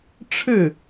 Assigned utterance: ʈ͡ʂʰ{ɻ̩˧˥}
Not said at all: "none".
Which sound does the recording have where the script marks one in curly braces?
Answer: ɻ̩˥˩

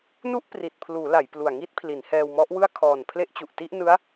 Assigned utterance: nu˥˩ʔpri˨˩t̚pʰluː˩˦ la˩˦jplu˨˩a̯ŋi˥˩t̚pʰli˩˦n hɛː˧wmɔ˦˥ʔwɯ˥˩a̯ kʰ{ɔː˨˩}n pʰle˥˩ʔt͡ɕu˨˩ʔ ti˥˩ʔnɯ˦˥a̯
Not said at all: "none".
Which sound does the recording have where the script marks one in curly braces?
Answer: ɔː˨˩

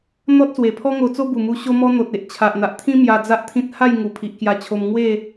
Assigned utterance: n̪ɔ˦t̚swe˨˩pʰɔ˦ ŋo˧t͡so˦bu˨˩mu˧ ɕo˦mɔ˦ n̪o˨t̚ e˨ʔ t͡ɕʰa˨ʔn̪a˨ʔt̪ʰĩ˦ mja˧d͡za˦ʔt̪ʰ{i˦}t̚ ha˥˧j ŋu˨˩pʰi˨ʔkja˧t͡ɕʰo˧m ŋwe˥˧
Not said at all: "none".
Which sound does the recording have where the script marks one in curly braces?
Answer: ĩ˦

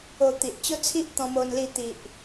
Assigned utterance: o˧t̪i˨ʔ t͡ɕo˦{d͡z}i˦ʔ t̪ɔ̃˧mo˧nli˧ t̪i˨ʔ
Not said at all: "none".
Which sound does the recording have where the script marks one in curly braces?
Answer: t͡sʰ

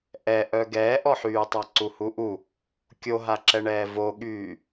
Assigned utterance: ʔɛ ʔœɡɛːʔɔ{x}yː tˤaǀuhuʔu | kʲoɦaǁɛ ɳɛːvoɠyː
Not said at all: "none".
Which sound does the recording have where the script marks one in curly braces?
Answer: ħ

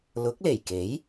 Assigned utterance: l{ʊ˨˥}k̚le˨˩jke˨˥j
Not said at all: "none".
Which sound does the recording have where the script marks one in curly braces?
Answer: ʊ˨˥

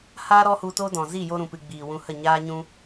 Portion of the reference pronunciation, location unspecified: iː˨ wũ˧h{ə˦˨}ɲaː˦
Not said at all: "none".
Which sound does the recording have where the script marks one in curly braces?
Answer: ə˦˨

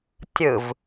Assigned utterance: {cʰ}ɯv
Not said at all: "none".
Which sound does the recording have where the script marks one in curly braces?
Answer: tʲ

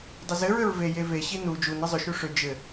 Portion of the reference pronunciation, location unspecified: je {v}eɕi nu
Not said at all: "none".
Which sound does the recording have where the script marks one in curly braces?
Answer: v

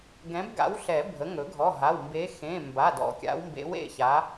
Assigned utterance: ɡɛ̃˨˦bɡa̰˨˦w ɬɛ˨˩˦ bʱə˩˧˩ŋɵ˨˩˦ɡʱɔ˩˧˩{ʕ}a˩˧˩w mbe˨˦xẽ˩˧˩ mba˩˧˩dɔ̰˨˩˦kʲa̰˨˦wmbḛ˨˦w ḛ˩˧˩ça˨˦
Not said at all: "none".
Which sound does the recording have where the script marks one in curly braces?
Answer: ɦ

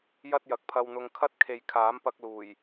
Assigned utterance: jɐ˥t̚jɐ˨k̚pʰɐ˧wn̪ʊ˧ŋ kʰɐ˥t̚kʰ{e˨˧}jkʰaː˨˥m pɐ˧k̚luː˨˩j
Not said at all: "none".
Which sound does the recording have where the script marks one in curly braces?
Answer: e˨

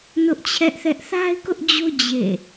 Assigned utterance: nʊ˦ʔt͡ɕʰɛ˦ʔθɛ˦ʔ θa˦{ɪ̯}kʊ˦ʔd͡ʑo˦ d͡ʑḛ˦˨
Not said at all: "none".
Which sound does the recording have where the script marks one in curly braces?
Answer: ɪ̯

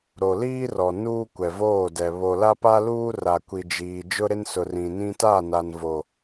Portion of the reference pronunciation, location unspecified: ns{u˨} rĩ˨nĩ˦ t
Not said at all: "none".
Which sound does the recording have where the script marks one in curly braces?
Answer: ʊ˨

